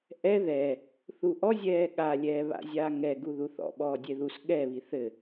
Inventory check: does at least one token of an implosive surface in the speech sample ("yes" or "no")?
yes